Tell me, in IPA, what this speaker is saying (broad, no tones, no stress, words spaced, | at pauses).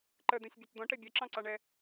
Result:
ǃəd̪ɛ̃sʲbʲʊt d̪ɔ̃ʈɛ bʲɜǁɑ̃ǀɑɳɛ